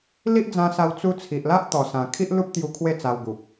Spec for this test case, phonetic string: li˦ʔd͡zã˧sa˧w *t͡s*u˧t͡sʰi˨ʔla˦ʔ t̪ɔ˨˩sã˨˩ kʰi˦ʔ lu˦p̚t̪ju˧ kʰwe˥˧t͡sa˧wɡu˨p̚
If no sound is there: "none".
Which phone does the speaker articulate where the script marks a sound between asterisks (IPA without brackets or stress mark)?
t͡s